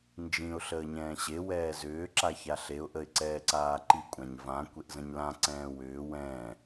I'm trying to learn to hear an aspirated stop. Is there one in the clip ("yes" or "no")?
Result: no